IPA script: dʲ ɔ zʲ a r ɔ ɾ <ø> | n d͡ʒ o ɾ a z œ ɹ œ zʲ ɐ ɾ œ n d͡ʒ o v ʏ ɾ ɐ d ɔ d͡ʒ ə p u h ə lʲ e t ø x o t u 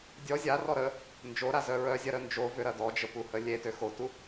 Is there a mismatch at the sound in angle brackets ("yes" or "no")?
yes